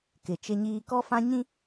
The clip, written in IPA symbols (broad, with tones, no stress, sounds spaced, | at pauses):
k ɪ˨ t͡ʃ ɪ˦ ɲ iː˦ k ɔ˦ f ã˦ ɲ ĩ˦